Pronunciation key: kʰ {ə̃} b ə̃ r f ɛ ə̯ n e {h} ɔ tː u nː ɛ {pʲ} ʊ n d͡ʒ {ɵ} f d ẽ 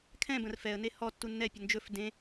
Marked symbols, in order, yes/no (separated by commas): no, yes, yes, yes